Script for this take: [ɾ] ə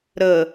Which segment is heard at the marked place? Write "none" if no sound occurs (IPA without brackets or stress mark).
ɾ